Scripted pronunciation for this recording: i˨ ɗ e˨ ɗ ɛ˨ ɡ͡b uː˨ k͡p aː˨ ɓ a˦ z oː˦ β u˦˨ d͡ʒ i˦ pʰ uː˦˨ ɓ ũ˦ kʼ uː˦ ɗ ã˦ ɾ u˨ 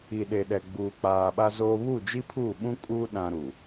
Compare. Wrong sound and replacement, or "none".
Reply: none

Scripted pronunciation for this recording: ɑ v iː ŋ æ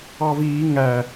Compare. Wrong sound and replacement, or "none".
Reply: none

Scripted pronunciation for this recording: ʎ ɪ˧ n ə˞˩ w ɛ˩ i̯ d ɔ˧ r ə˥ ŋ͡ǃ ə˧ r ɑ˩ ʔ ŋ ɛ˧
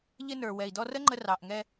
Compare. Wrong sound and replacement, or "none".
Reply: none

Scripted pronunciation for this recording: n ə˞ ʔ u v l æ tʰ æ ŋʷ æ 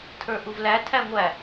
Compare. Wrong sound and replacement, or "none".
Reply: n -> tʰ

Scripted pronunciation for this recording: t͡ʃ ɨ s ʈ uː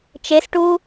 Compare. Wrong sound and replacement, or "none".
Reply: ɨ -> e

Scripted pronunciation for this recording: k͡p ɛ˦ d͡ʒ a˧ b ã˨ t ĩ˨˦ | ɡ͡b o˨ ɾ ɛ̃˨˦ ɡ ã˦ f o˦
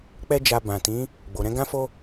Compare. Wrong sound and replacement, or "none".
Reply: none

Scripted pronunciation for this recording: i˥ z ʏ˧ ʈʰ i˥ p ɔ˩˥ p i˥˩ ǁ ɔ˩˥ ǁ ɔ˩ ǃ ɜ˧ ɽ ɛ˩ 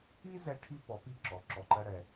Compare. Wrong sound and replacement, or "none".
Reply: ʏ˧ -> ɛ˧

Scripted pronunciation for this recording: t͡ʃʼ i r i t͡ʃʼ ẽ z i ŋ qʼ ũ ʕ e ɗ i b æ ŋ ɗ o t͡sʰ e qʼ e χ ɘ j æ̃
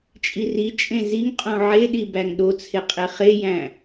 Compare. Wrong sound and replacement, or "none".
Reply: ɘ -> e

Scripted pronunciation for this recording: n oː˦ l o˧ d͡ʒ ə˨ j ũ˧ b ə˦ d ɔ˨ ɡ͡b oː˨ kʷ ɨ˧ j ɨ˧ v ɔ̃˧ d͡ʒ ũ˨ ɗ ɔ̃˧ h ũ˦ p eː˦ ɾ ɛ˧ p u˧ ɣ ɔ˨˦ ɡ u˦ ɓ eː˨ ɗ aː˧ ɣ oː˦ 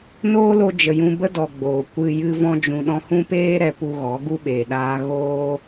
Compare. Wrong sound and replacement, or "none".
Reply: aː˧ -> aː˦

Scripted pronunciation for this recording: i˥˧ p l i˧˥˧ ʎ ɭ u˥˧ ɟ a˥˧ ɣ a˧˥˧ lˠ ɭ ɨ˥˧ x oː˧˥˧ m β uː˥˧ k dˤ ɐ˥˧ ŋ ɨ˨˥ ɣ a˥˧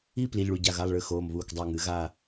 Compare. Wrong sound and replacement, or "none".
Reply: none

